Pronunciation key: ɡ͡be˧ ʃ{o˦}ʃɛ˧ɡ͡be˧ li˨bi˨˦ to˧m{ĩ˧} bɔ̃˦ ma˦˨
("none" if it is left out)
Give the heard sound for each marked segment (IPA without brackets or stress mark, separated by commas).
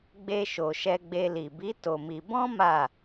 o˨, i˧